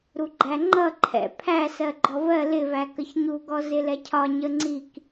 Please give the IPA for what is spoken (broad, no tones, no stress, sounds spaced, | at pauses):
ɾ u ɡ͡ǃ æ ŋ͡ǃ ʌ ǃʰ ɛ̰ pʰ æ s ɜ ɡ͡ǃ ɔ v ɜ l ɪ v æ k ə ç ɲ u ɡ ɔ z ɪ l ɛ cʰ ɒ ɲ ə ŋ͡ǀ i k